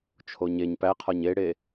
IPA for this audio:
t͡ʃʰ o ɲ e ɲ p æ qʰ ɒ ɲ e ɽ e

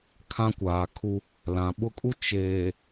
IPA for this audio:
kʰ ã˦ kʷ aː˨ kʰ u˦ | l ã˨ ɓ ʊ˦ kʼ u˦ t͡ʃ eː˨

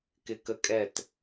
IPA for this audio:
k ɪ˧ k ə˧ kʼ ɛ˦˨ t

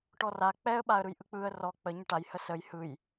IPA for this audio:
ʈ ɔ r a k͡p ɛ ə̯ ɓ a ə̯ ɾ ɯ j ʔ ɯ k͡p ɯ ə̯ r ɔ k͡p ə ɲ ə ʈ a j h ə s ə j h ɯ j

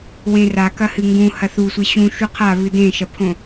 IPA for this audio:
w ẽ r a k ɐ h ɨ ŋ ɡ ũ h ɐ θ u sʷ e ɕ ũ ʃ u qʰ a β ɨ d ẽ ʃ ɐ pʰ õ

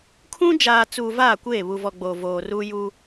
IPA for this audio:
kʰ ũ˦ d͡ʒ aː˨ t͡s uː˨ v aː˦˨ kʷ eː˦˨ β u˨ v ɔ˨ ɡ͡b o˨ v oː˨ r uː˦ j u˦

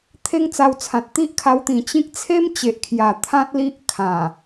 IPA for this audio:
t̪ʰ e˦ ŋ t͡s a˧ w t͡sʰ ã˨ t̚ t̪ i˦ ʔ kʰ a˧ w t̪ ĩ˨˩ t͡ɕ ĩ˦ k̚ t͡sʰ e˦ m t͡ɕ e˨ ʔ kʰ j a˨˩ t̪ʰ ã˦ t̚ l i˦ ʔ kʰ ã˨˩

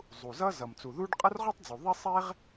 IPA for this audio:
zˤ u˩ z ʌ˥ z ʌ˩ m t͡s u˩ ð u˥ ɖ qʼ ʌ˥ r ʁ u˥ tˤ d͡z u˩ ðˤ e˥ sˤ e˥ ʁ

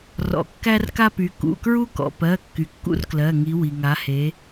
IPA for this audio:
r ɔ̰˩ kː æ˦ r k a˦ p y˩˧ k ṵ˩˧˩ k ɹ u˦ k ɔ̰˩ p ɜ˩˧˩ kː y˩ kː ṵ˦ r k l ɜ˩˧˩ ŋ i˩˧ w i˩ ŋ a˩˧ h e˩˧

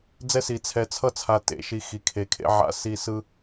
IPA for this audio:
d͡z ɛ˦ s i˨ t͡sʰ ɛ˨ t͡sʰ ʌ˦ t͡sʰ a˨ t ḛ˨˦ ʃ i˨ x i˨ kʰ e˨ kʰ ḛ˦ ʕ a̰˦ s i˦˨ s ɯ˦

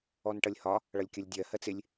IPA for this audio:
ɔ n ʈ ʌ lʲ h ɒ | ɭ ʌ lʲ kʲ ʌ lʲ dʲ ɜ h ɜ t͡s ɪ lʲ

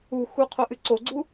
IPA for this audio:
u x u qʰ o ʔ ɨ ǀ o ɡ͡ǀ u

